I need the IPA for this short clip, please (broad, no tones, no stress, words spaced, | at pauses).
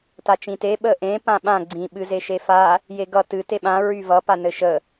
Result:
tat͡ʃĩte ɓəʔẽ pãɓã ɡ͡ǀĩ ɓɨzeʃefa | jeɡʌ tɨ teɓã ɹyvʌ panɘʃə